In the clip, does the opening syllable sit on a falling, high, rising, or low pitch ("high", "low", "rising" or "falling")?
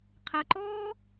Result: low